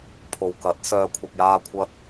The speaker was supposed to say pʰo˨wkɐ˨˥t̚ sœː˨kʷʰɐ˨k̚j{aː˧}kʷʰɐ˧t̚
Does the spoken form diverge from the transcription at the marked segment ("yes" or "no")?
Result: no